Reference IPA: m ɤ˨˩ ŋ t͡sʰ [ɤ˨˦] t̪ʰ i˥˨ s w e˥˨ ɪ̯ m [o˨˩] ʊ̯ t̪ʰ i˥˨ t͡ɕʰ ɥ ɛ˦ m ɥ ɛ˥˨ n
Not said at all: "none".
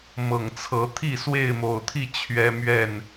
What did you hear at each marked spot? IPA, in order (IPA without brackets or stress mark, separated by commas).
ɤ˨˦, o˨˩